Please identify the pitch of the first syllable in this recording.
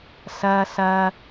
low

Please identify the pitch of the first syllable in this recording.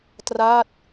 falling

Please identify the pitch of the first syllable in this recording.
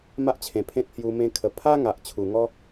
high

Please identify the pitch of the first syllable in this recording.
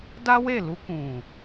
high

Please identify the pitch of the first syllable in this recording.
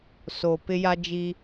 low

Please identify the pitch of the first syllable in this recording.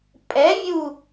rising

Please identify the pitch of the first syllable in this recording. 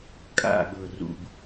falling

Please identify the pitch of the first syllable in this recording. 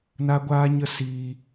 high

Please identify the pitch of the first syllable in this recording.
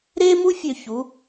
high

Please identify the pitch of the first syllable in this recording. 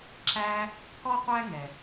high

